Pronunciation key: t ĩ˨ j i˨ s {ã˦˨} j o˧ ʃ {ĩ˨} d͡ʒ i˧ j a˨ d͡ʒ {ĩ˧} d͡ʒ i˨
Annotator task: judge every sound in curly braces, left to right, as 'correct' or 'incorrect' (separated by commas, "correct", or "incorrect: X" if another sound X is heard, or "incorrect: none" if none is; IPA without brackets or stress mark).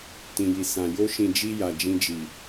incorrect: ã˨, correct, correct